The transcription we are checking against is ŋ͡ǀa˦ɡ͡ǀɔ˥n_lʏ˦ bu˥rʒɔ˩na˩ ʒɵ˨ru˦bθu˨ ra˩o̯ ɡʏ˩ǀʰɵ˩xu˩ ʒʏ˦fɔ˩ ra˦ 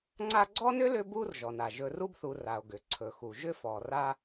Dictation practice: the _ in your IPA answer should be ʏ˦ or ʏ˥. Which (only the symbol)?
ʏ˥